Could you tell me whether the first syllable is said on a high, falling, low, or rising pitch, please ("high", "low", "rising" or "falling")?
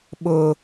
high